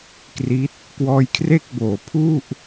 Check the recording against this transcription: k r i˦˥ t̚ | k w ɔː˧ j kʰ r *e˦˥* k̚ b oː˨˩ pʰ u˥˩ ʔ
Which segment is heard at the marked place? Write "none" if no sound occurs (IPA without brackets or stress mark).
e˥˩